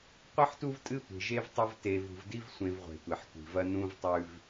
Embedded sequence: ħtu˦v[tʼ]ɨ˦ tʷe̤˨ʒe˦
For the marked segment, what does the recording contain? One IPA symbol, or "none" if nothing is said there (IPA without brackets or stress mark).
tʼ